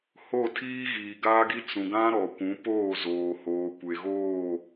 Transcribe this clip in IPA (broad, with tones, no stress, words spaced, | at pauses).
ho˦˨tʰiː˦ɣiː˨ ɡaː˦ɡi˦ t͡sũ˨ɡã˦ ɾɔ˨kʷũ˨˦poː˦˨zoː˨ hoː˨kʷe˨ɣoː˦˨